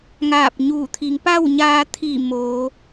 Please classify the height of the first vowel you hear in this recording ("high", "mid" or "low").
low